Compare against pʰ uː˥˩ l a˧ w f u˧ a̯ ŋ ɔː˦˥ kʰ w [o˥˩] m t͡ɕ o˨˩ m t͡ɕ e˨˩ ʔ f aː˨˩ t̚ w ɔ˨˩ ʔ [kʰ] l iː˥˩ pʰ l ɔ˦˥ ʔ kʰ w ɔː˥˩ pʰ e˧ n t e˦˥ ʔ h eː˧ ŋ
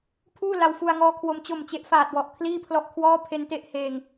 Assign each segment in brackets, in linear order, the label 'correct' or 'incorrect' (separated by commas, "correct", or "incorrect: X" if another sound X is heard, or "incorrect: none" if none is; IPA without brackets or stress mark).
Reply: incorrect: o˧, correct